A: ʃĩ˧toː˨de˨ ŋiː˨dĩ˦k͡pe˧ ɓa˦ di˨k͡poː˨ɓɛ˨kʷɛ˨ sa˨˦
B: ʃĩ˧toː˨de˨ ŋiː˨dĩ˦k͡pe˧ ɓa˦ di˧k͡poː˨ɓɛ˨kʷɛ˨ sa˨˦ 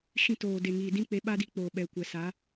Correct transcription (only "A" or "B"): B